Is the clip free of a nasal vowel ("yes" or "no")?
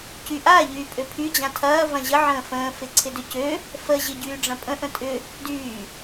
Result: no